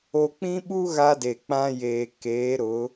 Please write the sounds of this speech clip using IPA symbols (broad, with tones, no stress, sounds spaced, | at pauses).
o˦ k͡p ĩ˦ ɓ u˦ ɣ a˦ d e˨ k͡p ã˦ j eː˨ k eː˨˦ ɾ ʊ˨˦